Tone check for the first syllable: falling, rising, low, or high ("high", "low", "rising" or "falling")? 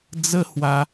high